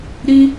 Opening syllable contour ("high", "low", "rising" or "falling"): high